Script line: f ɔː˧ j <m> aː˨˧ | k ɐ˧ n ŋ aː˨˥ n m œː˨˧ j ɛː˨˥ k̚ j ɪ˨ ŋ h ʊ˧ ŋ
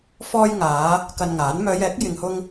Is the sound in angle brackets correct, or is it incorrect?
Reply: incorrect